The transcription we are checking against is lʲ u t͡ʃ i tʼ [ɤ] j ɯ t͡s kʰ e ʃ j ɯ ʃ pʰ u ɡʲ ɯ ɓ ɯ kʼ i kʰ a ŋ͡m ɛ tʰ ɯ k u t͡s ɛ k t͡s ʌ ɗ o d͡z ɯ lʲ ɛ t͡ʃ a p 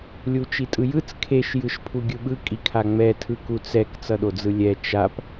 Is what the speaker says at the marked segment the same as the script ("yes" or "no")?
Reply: no